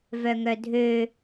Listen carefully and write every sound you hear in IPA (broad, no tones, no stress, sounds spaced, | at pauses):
v œ ŋ œ dʱ ø